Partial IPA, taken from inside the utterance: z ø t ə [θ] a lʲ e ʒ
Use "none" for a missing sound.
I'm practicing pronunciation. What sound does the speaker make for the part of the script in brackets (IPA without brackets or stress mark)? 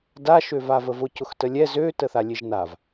θ